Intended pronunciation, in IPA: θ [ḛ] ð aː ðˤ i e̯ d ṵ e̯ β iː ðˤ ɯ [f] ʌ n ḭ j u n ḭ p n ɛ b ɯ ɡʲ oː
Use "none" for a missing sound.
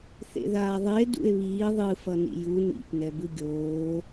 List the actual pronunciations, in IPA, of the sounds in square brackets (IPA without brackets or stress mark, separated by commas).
ḛ, f